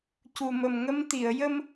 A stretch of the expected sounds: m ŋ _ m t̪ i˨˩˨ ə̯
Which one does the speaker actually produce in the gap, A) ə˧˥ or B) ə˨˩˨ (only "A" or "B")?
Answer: A